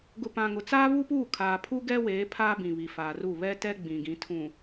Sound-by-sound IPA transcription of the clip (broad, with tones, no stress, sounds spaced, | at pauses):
ɡ ʊ˨ p ã˨ ŋ ʊ˨ t͡s aː˦ β u˦ p uː˦˨ kʰ aː˨ pʰ u˦ ɡ ɛ˦ w eː˨˦ pʰ aː˦ b ĩ˨ β i˨ f aː˨ r u˦˨ β ɛ˦ t ɛ˦ ɡ͡b ĩ˨ ɡ ĩ˨˦ tʰ ũ˨